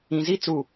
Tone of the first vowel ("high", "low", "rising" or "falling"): low